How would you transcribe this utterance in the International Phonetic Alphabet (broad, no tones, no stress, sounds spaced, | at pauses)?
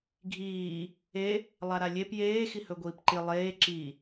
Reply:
ɡʱ iː | e | lˠ a ɾ a lʲ e p j eː x i h ɵ ɡʷ iː p ǃ i lˠ eː ǁ i